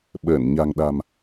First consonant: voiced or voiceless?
voiced